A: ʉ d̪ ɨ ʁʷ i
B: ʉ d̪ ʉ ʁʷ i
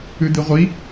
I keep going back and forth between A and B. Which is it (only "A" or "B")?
A